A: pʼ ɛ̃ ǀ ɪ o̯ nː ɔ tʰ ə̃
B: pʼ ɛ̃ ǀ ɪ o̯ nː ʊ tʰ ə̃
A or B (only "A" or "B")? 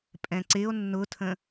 B